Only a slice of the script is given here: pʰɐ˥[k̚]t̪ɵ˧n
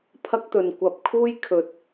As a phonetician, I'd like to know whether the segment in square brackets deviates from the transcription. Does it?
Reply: no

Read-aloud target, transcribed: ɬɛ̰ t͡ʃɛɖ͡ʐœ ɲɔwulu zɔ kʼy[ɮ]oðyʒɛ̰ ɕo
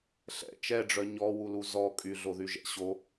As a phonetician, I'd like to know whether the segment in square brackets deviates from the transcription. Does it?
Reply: no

